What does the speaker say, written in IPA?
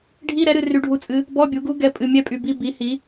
ɖʱ i˧˥˧ ɾ ɛ˩˥ ɾ ɨ˨ r y˧˥ ɖʱ u˧˥ t͡sʼ ɨ˧˥ | b ɔ˧˥˧ bʲ u˩˥ ɡ u˧˥ ɡ ɛ˨ pʼ ɨ˨ mʲ ɛ˧˥˧ pʼ y˨ b i˧˥˧ b i˩˥ h i˩˥

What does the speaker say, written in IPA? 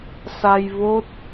s a˧ j v o˦˥ t̚

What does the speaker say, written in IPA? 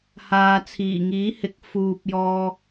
h aː˨ t͡sʰ iː˨˩ ŋ iː˨˥ h ɪ˨˥ k̚ f uː˨ p̚ j ɔː˧

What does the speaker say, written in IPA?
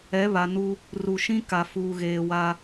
ɛ˨˦ β a˨ n u˦ | r u˨ ʃ ĩ˦ k a˨ f uː˨ ɣ eː˨ w a˦

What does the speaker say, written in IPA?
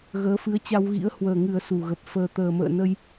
ɣ əː˨˦ f ɨ˨˦ ə̯ t͡ɕ a˧ w ɣ ḭ˧˥ ə̯ h w əː˨˩ ŋ ɨ˨˩ ə̯ s u˨˩ ɣ ə˨˩ p̚ f əː˧ t̪ əː˨˩ m ə̰ː˧˨ n ə˧ j

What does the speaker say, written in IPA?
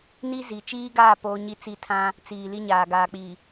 n i˦ z i˨ t͡ʃ iː˦ ɡ aː˦˨ p oː˦ ɲ i˦ t͡s i˦ tʰ ã˦ | t͡s iː˨ l i˦ ɲ aː˨ ɡ aː˨ k͡p i˨

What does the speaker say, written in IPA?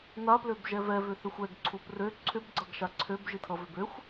n a p l ø b ʒ ɛ v ɛ v ʏ θ ʏ xʷ ɛ ɡ ǀʰ u p r ø ǀʰ ʏ b ɡ͡ǀ ʌ ɡ ʃ a ǀʰ ø b ʒ i tʰ ʌ v ʏ b ø xʷ

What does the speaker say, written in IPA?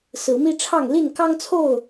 s ɹ̩˨˦ m i˦ ʈ͡ʂʰ ɑ˥˨ ŋ l i˥˨ n k ɑ˦ ŋ t͡sʰ o˥˨ ʊ̯

